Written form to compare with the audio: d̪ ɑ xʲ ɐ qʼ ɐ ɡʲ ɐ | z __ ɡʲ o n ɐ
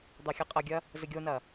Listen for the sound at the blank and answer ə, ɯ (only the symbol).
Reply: ə